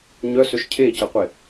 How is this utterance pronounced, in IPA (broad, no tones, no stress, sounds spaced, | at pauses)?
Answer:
ɲ œ s ø ʃ cʰ e c ə qʷ ɪ